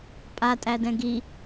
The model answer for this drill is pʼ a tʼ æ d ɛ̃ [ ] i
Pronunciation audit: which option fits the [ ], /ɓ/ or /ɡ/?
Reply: ɡ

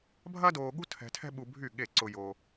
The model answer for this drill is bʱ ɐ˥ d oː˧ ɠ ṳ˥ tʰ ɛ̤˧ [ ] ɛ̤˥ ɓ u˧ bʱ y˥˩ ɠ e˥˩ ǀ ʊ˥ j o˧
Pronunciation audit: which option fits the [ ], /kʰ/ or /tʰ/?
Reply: tʰ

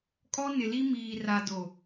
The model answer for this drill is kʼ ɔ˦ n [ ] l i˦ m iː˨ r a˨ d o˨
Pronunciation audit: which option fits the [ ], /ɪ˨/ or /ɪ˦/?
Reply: ɪ˨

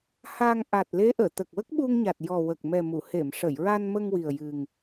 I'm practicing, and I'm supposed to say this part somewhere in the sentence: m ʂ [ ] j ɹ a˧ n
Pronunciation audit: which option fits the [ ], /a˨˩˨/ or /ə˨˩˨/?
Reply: ə˨˩˨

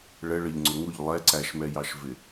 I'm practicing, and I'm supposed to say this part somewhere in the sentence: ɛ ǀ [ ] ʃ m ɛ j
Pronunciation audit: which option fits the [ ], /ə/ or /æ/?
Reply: æ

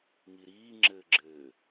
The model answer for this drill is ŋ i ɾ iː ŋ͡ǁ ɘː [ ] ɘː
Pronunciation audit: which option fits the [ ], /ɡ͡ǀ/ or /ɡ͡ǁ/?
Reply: ɡ͡ǁ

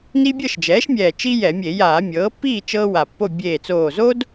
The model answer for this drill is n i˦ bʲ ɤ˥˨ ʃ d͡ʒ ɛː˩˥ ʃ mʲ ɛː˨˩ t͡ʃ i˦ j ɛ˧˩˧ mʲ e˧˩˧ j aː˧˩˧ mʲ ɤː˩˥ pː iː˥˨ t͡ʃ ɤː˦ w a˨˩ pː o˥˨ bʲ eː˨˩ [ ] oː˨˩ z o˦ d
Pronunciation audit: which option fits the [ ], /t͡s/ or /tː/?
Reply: t͡s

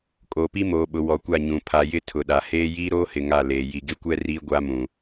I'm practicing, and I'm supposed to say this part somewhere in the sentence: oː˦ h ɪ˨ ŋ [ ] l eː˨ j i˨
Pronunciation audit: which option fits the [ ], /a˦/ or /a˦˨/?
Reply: a˦˨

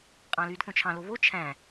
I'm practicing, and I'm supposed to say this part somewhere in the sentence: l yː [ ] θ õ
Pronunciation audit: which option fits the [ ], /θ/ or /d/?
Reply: d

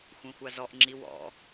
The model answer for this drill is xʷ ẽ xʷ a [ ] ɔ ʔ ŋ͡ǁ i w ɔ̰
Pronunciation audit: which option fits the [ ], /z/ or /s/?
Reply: z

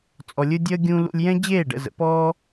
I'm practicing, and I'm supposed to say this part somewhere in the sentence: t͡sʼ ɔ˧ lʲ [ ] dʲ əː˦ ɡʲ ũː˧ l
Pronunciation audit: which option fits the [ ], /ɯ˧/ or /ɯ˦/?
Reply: ɯ˦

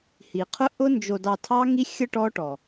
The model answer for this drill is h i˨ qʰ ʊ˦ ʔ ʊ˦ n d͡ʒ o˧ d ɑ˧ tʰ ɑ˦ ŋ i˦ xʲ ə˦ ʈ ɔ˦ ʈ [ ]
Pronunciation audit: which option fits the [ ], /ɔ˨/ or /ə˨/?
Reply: ɔ˨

